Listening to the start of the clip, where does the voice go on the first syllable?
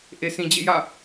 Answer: low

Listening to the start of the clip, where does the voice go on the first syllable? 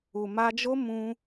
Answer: low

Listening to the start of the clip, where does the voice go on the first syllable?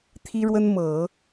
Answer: high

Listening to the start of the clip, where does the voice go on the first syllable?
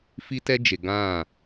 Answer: high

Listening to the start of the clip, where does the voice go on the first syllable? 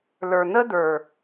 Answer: low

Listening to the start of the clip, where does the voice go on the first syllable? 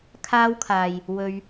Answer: high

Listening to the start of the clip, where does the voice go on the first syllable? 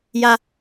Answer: high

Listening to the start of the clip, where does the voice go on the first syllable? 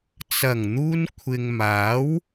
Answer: low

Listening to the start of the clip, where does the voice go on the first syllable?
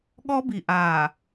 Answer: high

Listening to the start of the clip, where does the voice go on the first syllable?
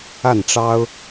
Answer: falling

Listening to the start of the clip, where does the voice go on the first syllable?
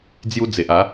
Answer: high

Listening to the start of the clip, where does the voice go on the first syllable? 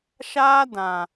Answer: high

